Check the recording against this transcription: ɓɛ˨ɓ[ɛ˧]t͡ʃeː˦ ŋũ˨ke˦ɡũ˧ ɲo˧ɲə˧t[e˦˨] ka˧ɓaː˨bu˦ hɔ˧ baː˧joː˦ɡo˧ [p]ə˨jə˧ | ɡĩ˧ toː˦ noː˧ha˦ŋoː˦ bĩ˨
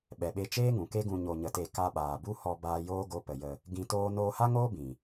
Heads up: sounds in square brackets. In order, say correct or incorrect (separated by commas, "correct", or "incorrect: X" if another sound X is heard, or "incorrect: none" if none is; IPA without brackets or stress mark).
incorrect: e˧, correct, correct